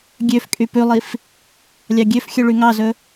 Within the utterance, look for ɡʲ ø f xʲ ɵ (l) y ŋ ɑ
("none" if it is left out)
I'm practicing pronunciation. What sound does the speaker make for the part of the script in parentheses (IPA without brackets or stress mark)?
ɭ